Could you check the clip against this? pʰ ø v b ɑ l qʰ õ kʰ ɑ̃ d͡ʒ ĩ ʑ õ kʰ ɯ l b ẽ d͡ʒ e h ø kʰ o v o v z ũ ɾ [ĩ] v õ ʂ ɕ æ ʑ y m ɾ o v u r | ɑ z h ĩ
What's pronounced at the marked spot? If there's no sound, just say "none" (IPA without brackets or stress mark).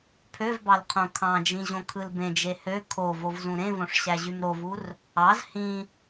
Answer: ẽ